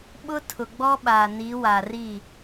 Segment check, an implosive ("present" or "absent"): present